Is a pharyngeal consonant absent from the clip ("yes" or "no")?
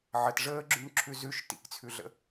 no